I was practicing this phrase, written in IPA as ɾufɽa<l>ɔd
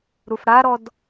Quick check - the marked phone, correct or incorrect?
incorrect